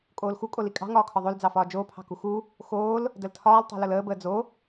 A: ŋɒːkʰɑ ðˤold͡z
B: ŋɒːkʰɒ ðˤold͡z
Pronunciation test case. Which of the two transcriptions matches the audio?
B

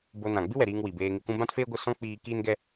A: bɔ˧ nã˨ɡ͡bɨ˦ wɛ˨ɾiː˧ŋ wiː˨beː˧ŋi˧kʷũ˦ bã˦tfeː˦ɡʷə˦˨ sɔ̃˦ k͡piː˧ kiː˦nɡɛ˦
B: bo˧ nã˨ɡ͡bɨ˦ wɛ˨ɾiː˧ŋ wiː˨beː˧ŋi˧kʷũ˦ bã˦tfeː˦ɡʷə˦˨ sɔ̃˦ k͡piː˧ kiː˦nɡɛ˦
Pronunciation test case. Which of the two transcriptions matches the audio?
B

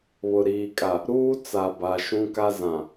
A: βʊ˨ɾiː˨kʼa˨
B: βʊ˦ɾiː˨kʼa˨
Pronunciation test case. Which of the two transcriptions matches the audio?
A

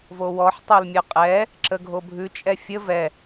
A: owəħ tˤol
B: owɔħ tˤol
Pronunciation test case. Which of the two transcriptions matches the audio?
B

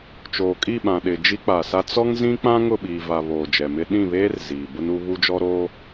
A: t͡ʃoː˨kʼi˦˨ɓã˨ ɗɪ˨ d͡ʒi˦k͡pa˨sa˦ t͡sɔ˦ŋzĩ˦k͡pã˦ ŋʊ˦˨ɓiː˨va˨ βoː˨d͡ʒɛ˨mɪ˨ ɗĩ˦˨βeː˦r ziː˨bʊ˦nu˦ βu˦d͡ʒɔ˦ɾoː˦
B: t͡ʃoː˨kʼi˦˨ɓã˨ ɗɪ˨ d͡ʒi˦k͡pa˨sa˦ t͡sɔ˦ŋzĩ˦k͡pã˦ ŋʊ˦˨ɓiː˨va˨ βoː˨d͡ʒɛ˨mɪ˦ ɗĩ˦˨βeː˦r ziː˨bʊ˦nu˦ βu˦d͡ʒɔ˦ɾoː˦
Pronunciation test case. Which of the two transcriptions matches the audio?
B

